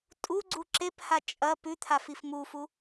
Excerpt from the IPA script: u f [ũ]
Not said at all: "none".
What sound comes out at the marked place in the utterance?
u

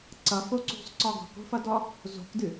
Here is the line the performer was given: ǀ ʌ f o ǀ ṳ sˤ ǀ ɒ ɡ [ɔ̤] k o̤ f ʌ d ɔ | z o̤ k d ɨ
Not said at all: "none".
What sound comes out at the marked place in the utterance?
ɔ̤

